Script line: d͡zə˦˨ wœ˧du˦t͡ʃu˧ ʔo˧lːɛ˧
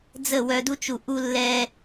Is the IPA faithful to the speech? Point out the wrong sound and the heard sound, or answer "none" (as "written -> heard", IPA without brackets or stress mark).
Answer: o˧ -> u˧